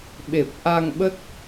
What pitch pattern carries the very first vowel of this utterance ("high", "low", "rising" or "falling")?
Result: low